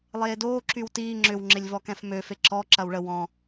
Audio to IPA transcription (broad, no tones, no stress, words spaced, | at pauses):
lˠeːdoː ǁywtiː ŋ͡ǁʏwŋ͡ǁɪlʲvɔkɛ̃f møfe ǁɔ ǁɐwɭə wɔ̃